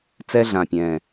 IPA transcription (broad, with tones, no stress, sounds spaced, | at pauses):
t͡s ɛ˦ ɮ ã˨˩ pʲ ɛ̃˨˩